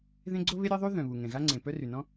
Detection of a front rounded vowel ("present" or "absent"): present